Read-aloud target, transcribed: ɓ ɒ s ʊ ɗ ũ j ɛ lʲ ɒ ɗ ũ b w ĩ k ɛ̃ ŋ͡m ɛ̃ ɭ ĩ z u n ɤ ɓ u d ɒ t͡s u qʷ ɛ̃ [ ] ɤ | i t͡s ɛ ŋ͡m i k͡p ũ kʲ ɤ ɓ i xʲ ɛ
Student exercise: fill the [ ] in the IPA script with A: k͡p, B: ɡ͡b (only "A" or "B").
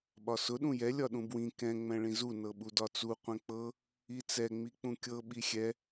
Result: A